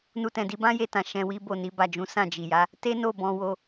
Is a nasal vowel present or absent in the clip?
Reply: present